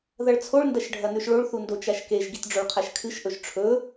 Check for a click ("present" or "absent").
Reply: absent